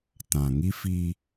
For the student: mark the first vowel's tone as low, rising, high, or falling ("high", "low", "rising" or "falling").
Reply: low